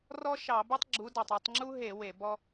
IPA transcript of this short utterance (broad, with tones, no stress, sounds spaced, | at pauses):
r ɔ˥ ʃ ɑ˧˩˧ b u˥ tˤ ɡ͡ǁ u˨˦ d ɑ˩ tˤ u˦˨ tˤ ŋ͡ǁ u˥ ɦ e˧˩˧ w e˧˩˧ b ɔ˥